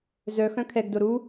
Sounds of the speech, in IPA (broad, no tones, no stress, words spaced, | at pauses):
zœxœ̃ kʰɛɡdo ɾu